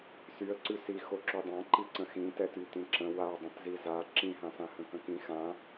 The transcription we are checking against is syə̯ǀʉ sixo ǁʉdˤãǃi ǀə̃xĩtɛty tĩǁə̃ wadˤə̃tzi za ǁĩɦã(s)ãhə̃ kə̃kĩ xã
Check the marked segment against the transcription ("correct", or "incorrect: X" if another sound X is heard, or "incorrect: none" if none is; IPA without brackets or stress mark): correct